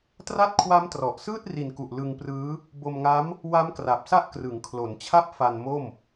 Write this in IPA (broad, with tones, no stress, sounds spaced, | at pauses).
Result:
t r a˥˩ t̚ kʰ w a˦˥ m t r ɔ˨˩ ʔ s ɯː˥˩ t̚ r i˨˩ n k u˨˩ ʔ l ɯ˧ ŋ p r ɯː˦˥ | b o˧ m ŋ a˦˥ m | w a˦˥ m k r a˨˩ p̚ s a˦˥ ʔ k r ɯ˩˦ ŋ kʰ l o˩˦ n t͡ɕʰ a˥˩ p̚ f a˧ n m o˥˩ m